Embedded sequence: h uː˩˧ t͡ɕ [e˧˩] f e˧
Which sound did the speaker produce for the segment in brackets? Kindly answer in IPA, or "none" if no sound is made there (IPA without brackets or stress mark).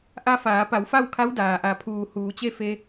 e˥˨